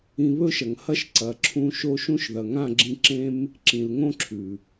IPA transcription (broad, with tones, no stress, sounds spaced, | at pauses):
ĩ˧ β ɵ˦ ʃ ɐ˨ ŋ h ɐ˦ ʃ ǀ ɐ˨ ǁʰ ũ˧ ʃ o˦ ʃ ũ˦ ʃ ð ɐ˨ ŋ ã˦˨ ɡ͡ǁ ĩ˧ ǁ ẽ˦ m | ǁ ĩ˨ l ŋ õ˦ ǁʰ ʉ˨